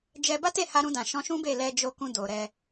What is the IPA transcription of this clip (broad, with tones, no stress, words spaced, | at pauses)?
d͡ʒɛ˧ ba˦te˦˨ha˧ ɾũ˧dã˨ ʃɔ̃˧ ʃũ˦be˦˨ lɛ˧d͡ʒo˧ kũ˧do˨ɾɛ˧